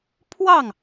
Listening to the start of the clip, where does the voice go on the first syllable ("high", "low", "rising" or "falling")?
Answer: falling